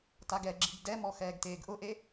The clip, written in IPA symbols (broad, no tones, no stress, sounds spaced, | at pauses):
t a ɡ ɛ ɡ͡ǁ i ɡ d ɛ m ɔ x ɛː ɡ t eː ɡ ʔ ʊ ʔ e